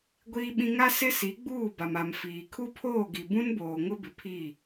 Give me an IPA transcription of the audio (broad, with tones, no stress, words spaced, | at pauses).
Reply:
ɡʷiː˦ɓĩ˦ ŋa˦sɪ˦ si˨˦ ɡ͡buː˦˨ba˨ma˨mfiː˨ kʰu˦pʰoː˦˨ɡi˨ bũ˦nboː˨ŋʊ˦bɪ˨ pʰi˦˨